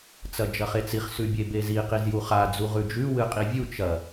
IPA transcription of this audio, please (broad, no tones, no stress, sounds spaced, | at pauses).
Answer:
t͡s ɐ d͡ʒ ɐ χ e t͡s i χ s ʉ bʲ e b e z i q i z j u χ a d͡z u ʁ ʉ d͡ʒ ʉ w ɨ qʼ i vʲ u t͡ʃ ɐ